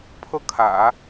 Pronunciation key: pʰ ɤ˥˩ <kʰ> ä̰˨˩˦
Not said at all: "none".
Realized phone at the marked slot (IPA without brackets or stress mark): kʰ